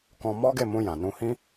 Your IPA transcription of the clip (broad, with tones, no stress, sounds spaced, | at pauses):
k ɔ̃˦ m ɔ˦ ɡ e˦˨ m ũ˧ j ã˨ n ũ˧ h ĩ˦